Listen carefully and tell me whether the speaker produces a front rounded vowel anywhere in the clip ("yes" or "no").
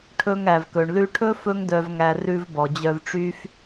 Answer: yes